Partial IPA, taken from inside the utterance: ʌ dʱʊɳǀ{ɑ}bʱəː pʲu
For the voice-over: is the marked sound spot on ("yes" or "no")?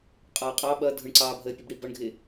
no